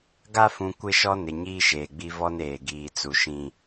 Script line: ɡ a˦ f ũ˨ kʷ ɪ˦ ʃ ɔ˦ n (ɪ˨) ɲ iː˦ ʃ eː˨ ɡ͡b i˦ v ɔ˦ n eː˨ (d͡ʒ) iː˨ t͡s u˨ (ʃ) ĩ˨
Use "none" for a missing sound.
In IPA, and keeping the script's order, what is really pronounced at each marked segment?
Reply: ɪ˨, ɡ, ʃ

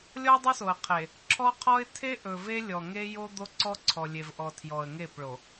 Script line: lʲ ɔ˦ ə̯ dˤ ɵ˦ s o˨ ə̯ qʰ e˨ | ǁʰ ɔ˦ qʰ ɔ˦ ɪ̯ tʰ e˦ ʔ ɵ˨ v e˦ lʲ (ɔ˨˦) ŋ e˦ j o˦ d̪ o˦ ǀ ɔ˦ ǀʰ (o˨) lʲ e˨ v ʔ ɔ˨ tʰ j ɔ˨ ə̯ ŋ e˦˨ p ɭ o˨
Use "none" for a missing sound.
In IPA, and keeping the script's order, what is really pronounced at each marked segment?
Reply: ɔ˨, ɔ˨

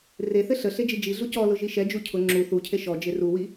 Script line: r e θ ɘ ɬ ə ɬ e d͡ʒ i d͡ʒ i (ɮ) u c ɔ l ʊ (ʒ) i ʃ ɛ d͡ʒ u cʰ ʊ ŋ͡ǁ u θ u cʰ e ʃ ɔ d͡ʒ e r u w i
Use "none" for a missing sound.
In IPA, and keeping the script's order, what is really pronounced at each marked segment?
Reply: ɮ, ʒ

